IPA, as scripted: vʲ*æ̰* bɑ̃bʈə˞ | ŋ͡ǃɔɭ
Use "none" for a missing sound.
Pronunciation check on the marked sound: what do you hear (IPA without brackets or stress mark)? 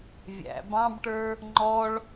æ̰